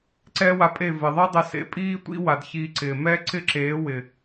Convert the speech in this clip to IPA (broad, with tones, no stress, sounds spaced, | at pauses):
ǀ ɛː˦ w a˧ pʼ e˦˨ v ɪ˨ ðˤ i˦ dˤ ɪ˧ s ḛ˧ pʼ iː˦ tʷ ḭ˦ w a˨ d ç iː˧ ǀ ɪː˨ m ɛː˦ ǀ ɪ˦ ǁ eː˨˦ w ɪ˨